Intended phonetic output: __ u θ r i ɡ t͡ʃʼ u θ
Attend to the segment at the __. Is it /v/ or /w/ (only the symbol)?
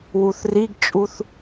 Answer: w